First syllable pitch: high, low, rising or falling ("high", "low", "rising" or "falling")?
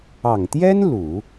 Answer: low